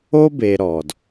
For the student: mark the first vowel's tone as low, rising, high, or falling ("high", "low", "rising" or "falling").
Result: high